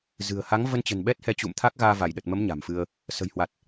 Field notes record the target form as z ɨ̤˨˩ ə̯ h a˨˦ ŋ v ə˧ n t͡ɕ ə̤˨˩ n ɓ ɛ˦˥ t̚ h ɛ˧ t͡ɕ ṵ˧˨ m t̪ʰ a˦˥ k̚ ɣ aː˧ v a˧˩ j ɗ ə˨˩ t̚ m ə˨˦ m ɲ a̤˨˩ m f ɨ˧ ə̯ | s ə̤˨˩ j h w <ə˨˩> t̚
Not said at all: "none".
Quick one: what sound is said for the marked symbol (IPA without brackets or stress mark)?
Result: a˨˩